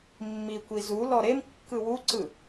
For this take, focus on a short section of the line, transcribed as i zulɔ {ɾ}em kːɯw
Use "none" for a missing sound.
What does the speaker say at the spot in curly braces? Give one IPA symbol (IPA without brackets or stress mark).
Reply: ɾ